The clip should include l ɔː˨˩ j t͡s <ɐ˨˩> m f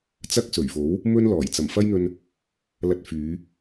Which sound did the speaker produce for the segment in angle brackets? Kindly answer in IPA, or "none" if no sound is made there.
ɐ˨˩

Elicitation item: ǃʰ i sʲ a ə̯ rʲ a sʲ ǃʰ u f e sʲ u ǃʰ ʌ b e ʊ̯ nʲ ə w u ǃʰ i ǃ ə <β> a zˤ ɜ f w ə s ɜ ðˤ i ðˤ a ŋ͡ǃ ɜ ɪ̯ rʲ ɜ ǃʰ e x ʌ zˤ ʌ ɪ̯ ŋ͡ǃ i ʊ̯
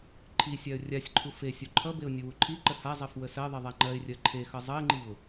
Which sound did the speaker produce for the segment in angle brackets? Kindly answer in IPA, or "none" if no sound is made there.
h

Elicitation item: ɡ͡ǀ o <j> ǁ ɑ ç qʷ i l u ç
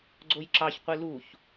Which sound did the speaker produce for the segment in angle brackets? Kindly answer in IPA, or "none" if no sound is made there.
j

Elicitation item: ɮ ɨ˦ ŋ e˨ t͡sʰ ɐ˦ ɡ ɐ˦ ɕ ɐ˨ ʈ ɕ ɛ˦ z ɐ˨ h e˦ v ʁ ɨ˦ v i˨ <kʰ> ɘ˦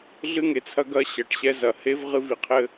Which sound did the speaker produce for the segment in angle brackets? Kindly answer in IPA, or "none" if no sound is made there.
qʰ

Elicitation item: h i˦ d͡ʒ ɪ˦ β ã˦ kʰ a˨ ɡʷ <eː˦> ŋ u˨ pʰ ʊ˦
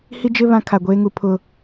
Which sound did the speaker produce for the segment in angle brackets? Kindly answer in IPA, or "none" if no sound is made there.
eː˦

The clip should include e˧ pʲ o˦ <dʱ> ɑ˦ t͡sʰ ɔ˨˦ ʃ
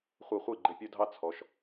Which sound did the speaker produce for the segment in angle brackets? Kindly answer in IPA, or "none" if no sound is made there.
dʱ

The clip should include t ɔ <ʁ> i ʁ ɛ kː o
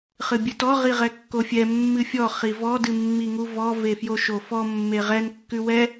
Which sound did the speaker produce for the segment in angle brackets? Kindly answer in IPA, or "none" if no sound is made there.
ʁ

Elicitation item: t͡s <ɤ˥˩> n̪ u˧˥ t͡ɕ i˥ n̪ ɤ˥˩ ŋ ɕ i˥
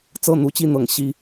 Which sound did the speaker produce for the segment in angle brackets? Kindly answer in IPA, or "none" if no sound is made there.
ɤ˥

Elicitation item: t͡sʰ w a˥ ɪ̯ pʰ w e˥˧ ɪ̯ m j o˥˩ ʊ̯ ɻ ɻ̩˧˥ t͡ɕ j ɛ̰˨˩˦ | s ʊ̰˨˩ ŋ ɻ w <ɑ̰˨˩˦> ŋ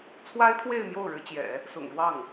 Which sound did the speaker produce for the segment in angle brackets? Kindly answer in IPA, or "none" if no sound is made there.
ɑ˥˩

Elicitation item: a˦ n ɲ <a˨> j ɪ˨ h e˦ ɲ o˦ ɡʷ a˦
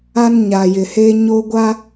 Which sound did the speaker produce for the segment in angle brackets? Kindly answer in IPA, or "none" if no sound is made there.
a˨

